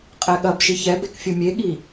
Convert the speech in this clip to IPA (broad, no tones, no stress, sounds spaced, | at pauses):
qʼ ɛ ɠ ɐ b ʃ i ç ɛ b e k fʲ u mʲ e ɠ i